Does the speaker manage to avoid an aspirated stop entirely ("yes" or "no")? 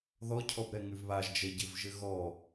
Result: no